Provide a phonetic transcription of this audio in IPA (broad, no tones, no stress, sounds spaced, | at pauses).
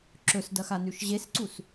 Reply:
ǁ ɵ s d ɐ x a n ʉ ʃ ʑ e s ǀ u s